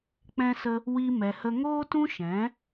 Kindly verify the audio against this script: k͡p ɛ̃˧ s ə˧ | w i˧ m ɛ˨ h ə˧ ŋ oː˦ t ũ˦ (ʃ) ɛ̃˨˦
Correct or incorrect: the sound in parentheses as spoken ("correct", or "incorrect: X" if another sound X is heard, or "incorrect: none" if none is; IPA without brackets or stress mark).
correct